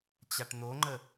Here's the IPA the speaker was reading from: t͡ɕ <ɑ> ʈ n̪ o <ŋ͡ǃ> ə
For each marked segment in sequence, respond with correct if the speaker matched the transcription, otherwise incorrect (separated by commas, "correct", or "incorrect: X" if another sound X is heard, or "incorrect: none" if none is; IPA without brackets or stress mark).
incorrect: a, correct